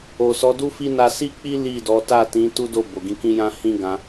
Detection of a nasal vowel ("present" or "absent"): present